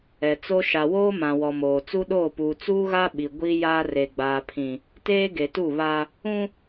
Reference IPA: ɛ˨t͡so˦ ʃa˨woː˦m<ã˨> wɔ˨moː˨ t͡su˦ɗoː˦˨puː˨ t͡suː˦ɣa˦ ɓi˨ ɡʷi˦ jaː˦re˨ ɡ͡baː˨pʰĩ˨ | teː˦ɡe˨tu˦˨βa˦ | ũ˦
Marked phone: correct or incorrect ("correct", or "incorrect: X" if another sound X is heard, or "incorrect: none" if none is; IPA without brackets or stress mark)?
correct